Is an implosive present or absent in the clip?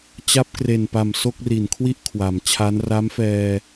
absent